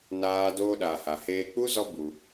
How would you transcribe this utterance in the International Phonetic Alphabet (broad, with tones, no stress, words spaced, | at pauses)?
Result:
naː˦doː˦ɗa˧ ha˨heː˧k͡pu˦ zɔ˦bu˧